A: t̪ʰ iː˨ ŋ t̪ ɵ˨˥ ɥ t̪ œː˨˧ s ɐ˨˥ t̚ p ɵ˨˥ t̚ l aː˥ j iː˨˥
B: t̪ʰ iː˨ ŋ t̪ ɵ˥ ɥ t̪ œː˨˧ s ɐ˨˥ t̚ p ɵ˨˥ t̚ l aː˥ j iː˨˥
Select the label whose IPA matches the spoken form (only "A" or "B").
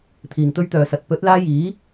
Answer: B